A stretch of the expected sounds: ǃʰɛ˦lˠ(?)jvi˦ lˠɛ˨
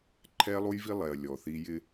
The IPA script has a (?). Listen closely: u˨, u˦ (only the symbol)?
u˦